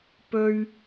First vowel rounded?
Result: yes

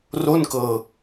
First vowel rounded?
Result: yes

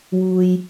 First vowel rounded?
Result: yes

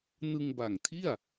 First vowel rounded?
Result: no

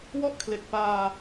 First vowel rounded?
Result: yes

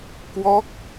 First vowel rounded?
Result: yes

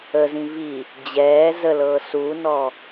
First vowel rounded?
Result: no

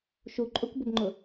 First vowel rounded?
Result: yes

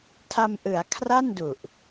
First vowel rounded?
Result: no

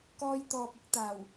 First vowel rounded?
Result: yes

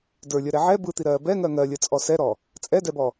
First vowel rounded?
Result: no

